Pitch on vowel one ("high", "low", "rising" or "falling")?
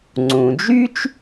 low